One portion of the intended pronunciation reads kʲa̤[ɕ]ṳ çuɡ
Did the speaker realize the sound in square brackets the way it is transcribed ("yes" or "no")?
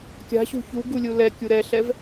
yes